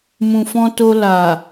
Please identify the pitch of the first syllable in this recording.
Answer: low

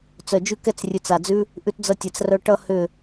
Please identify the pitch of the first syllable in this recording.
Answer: low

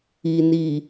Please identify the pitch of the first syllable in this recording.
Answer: low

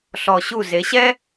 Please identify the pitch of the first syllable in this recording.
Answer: low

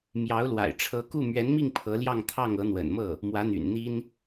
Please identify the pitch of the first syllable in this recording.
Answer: rising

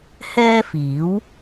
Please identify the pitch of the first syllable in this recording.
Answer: high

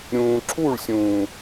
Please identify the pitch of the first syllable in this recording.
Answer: low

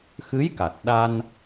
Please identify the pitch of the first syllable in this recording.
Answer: rising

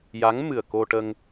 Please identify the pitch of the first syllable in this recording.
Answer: rising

